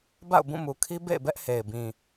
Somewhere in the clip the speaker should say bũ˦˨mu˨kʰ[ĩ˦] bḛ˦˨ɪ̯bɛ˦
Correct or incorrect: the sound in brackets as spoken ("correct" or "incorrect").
incorrect